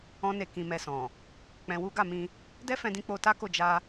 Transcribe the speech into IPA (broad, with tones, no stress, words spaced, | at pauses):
ɔ̃˦ne˦˨kĩ˧mɛ˧ sɔ̃˨ | k͡pɛ̃˧wu˦ ɡa˦˨mĩ˧ | dɛ˦fɛ̃˧dĩ˧k͡po˧ ta˦ko˦˨ d͡ʒa˧